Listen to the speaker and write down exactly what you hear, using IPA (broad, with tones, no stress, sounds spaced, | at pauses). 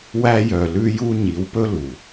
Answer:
w æ˦ j œ˨ l ʉ˦ j u˦ ɲ i˨˦ w p ɵ˦ l u˨